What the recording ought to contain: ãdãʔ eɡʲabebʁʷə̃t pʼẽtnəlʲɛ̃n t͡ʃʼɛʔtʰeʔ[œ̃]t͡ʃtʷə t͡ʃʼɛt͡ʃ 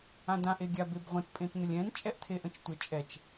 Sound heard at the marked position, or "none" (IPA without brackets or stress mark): ə̃